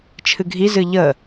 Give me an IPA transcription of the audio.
t͡ʃʰ ɨ ɡʱ i z ɨ ʎ ə

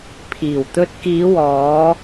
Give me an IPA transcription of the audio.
pʰ iː˨˩ w t̪ ɵ˧ t̚ k iː˨˧ w ɔː˨˧

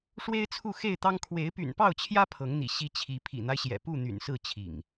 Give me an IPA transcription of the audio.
ʂ w e˦ ɪ̯ t͡sʰ u˥˨ x e˥˨ ɪ̯ t̪ ɑ˦ ŋ kʰ w e˨˦ ɪ̯ p y̰˨˩ n p ɑ˥˨ ʊ̯ t͡ɕʰ j ä˦ pʰ ɤ˨˦ ŋ n̪ ḭ˨˩ ɕ i˦ t͡ɕʰ i˨˦ pʰ ḭ˨˩ n̪ a˦ ɪ̯ ɕ j ɛ̰˨˩ p u˥˨ n̪ y̰˨˩ n s ɹ̩˥˨ t͡ɕʰ ḭ˨˩ ŋ

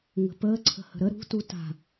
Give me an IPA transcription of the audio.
ŋ ə̤ p əː ǀʰ ə̤ h ə̤ ɾ ə ɾ ṳ t u t a̤

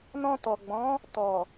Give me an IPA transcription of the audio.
n ɔ̃˧ t ɔ˨ ɡ͡b ɔ̃˨˦ | t ɔ˨

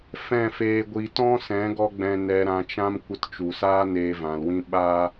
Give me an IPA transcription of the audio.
f ɛ̃˦˨ f eː˧ ɡʷ i˧ t ɔ̃˦ s ɛ̃˨˦ ɡ ɔ˧ ɡ͡b ɛ̃˧ n ɛ˧ ɾ ã˧ t͡ʃ ã˦ m kʷ ə˧ t t͡ʃ u˨ s aː˦ n eː˧ v ã˨ l w ĩ˦ ɓ aː˦

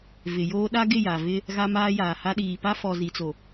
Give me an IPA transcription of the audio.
v ɪ˨ j oː˦ ɗ a˦ ɡ ɪ˦˨ j a˨ v ɪ˦ | ɣ a˦ m aː˦ j aː˨ h a˦ ɗ iː˨ p a˦ f ɔ˨ z i˨ t͡s o˨

